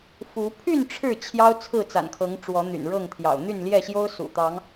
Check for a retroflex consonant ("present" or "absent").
present